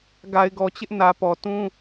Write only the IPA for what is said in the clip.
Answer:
ɡ a˨ ɪ̯ ɡ ɔ˨ t͡ɕ ɪ˦ ʔ n ä˨ p ɔ˨ t ũ˦

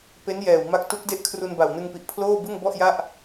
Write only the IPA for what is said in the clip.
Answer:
p e˦˥ n j ɛː˨˩ w m a˦˥ k̚ t u˦˥ k̚ d e˥˩ ʔ kʰ r u˧ n b a˨˩ w n ɯ˧ ŋ p i˨˩ ʔ pʰ l oː˥˩ b ɯ˥˩ ŋ b ɔ˥˩ ʔ j a˥˩ ʔ

